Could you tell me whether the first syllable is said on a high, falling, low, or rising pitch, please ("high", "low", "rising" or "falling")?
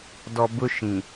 low